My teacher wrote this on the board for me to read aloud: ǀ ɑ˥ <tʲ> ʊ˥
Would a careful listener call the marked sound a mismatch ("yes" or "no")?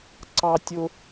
no